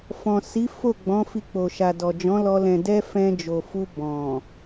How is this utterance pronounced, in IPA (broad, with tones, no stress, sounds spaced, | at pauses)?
f ɔ̃˨ s i˨˦ f o˦˨ ɡ͡b ɔ̃˨˦ f i˧ k͡p o˨ ʃ a˨ d ɔ˨ d͡ʒ ɔ̃˨˦ l ɔ˧ l ɛ̃˨ d ɛ˧ f ɛ̃˧ d͡ʒ o˨ f u˧ b ɔ̃˨